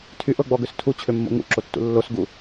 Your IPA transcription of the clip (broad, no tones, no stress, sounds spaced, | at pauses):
tʰ y ʔ ɤ ɡ͡b ɔ ɡ ø s tʰ u t͡ɕʰ ø mː o̰ ŋ ṵ ǁ o tː ṵ lː o s ɡ u